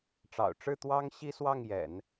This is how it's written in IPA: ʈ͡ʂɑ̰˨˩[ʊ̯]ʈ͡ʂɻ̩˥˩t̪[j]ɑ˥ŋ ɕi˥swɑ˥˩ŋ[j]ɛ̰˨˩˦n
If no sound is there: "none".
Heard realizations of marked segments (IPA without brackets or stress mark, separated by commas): ʊ̯, w, j